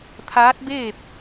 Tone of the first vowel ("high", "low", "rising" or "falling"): rising